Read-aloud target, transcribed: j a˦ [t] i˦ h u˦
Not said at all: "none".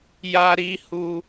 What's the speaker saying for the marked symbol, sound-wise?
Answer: ɾ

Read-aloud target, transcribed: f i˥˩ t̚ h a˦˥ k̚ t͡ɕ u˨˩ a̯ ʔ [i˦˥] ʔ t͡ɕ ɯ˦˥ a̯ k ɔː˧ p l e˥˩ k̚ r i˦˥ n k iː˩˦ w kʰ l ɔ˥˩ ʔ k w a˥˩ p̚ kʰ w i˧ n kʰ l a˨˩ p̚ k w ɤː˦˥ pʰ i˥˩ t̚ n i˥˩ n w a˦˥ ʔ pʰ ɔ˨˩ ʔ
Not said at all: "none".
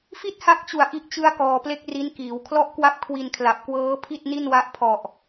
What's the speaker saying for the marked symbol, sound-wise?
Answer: i˦˥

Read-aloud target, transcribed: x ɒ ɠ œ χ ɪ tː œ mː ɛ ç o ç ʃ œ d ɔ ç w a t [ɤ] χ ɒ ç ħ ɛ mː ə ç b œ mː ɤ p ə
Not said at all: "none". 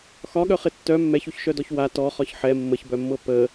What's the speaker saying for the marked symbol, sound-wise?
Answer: ɔ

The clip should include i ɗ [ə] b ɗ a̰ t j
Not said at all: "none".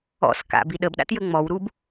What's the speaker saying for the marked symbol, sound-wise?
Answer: ə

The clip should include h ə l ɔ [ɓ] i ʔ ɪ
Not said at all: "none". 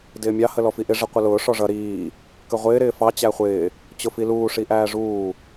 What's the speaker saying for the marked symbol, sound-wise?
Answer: f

